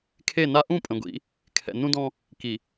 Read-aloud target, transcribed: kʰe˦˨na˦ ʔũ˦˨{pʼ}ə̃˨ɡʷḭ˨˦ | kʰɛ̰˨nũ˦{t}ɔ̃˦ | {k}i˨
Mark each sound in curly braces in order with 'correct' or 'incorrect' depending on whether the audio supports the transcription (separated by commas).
correct, incorrect, correct